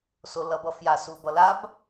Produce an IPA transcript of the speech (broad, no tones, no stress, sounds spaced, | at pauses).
s o l ʌ b ʌ f j a s u b ʌ l a b